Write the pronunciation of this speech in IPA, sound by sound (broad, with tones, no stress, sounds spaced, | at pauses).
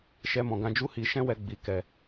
ʃ ɛ˧ m ɔ̃˨ ɡ ã˧ d͡ʒ u˦ h i˧ ʃ ɛ̃˦ w ɛ˧ ɡ͡b i˨ k ɛ˧